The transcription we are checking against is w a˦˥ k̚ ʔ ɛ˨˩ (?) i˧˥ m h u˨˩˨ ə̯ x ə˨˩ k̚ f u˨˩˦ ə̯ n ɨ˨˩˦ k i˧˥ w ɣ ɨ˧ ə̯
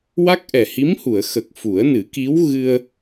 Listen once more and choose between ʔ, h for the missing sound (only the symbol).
h